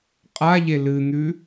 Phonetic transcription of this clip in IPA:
qʼa ʎelɨn̪ʉ

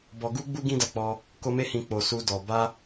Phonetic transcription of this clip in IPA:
bɔ˧ɡu˦ɡ͡bu˦ ɡĩ˦da˧k͡pɔ˧ | ko˧me˧hĩ˨ k͡po˨su˧dɔ˨ ba˧

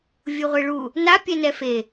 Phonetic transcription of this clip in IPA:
vʲuʁʷeɭu | na pʲɛnɛfe

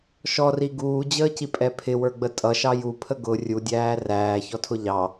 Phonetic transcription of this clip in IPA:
ʃɔri ɡuːd͡ʑəːcipʼɛ pʰɪwə˞ɡ͡bə tʼʌʃɑ jupʰə ɡʊ rʲudʲæː ræːçɔtʰʊ ʎɑ

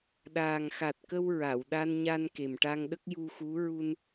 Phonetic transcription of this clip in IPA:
ɗaː˨˩ŋxa˨˩t̚kə˧w ɹa˨˩˨wɗa˧nɲa˧n ke˨˩mʈa˧ŋɗə˦˥k̚ ju˧xu˧˥ ɹu˧n

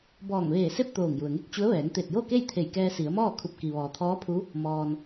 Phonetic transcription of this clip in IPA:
bɔː˧˩ŋʋeː˧˩se˥˨p̚ t̪oː˧˩ŋju˩ə̯ŋe˥˨k̚ t͡ɕu˧˥ə̯ ʋɛː˩˧ŋt̪e˧˩t̚jo˥˨ke˥˨j t̪ʰe˧˩jkɛː˧si˩˧ə̯mɔː˥˨ kʰu˧˩p̚ ki˩ʋɔː˩t̪ʰɔː˧˥pʰu˧˥ | mɔː˧n

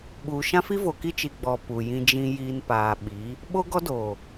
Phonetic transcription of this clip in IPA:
ɓuː˨ʃã˦fi˦ vo˨ki˦t͡ʃi˨ɡ͡bɔ˨ pu˨ jĩ˨d͡ʒĩ˨jiː˨n paː˨ɓi˨˦ | ɓo˦ɡɔ˦do˨

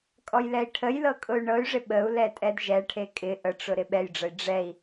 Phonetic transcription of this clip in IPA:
kʼɔjlɛi̯ʈʰəjlɤ kʼʊy̯ɳɤy̯ʐɪ ɓəu̯lɛ tʼɛdʒɛʈʰe kʼɪ ʔəʈ͡ʂʊ ɾɪɓɛjɖ͡ʐəi̯ ɖ͡ʐɛi̯

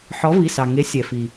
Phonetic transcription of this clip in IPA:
ħɔ˨˦vi˩˧˩sɑ˩ŋe˨˦ sʲɛ˩ fi˩

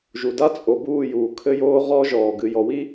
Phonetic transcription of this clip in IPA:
ʒu˨da˦t͡sʼo˨ buː˦˨juː˨ kʰɘ˧joː˧ ʁɔ˦ʒɔː˨ ɡɨ˨jɔ˨wi˦

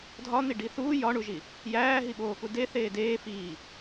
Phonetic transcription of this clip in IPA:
dʱɒn̪iɖi θuː jɒɳuʒi | jæːɦiɓoːku deθeː deː fiː

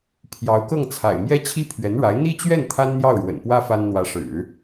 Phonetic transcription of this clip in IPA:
pʰjɑ˧˥ʊ̯kɤ˥˩ŋt͡sʰa̰˨˩ɪ̯ mjɛ˥t͡ɕʰi˥pʰɥɛ˧˥nɻa˧˥ɪ̯ n̪i˥t͡ɕɥɛ˥˩n t̪ʰa˥nn̪jɑ˥˩ʊ̯ɻwə̰˨˩npwä˥ fa˥n n̪wä˧˥ʂɻ̩˨˩˦

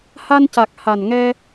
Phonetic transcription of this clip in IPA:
ha˧nca˨˩k̚ ha˨˩nŋɛ˧

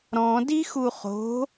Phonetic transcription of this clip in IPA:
ɾɔ̃ dixuχo̤

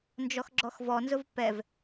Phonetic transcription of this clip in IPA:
nd͡ʒɔxɡ͡ǁɔxvɔnzʊv pɛv

